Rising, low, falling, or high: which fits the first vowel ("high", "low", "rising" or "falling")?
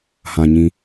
low